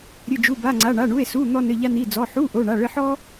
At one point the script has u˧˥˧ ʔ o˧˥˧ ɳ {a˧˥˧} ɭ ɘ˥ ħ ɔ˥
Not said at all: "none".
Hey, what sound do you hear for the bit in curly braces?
a˧˥˧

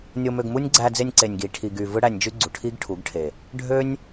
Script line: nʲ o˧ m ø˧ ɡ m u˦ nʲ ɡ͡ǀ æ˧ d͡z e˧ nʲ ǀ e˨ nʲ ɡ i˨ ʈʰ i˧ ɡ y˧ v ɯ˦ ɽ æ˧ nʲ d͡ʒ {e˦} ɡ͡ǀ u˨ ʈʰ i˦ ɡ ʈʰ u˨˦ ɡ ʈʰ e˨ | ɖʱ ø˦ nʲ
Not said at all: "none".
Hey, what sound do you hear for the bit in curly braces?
y˦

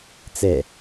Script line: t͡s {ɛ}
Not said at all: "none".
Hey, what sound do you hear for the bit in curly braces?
ɛ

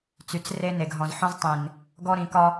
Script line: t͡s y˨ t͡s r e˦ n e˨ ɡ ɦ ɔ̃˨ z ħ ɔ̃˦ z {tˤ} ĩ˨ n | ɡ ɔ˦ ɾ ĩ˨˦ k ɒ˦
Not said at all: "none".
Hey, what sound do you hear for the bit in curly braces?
tˤ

